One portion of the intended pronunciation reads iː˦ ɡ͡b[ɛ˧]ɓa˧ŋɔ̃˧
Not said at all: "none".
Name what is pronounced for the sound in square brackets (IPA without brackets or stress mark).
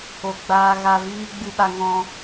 ɨ˧